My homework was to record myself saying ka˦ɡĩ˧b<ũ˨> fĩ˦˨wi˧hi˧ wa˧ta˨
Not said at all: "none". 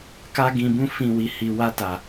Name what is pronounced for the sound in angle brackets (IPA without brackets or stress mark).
ũ˦